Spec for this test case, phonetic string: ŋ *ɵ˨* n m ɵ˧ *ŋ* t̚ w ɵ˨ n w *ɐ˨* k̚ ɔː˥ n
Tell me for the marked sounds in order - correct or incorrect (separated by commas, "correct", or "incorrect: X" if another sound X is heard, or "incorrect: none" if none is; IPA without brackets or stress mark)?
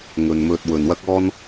correct, incorrect: none, incorrect: ɐ˥